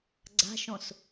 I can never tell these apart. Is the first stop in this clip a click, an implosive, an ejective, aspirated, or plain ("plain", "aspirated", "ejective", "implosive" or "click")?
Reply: click